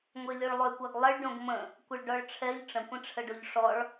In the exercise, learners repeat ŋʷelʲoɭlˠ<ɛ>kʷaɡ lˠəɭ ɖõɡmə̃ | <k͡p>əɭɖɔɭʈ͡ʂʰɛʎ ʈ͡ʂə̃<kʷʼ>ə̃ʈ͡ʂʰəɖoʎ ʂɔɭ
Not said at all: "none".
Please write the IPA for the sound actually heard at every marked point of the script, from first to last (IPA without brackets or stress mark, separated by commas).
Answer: ø, kʷ, kʷ